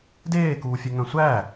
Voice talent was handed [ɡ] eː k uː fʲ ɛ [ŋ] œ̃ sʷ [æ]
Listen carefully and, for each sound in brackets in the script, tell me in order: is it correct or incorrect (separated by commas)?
incorrect, correct, correct